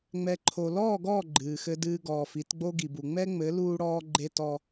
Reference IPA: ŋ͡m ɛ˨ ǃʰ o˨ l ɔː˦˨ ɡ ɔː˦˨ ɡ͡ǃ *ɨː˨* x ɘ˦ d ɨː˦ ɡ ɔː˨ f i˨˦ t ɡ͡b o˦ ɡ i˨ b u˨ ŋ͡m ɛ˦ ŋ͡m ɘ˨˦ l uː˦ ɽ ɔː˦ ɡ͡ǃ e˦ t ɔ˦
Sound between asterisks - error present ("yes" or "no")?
no